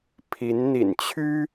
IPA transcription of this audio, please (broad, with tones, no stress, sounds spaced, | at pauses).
pʰ i˧˥ n n̪ ḭ˨˩ n t͡ɕʰ y˥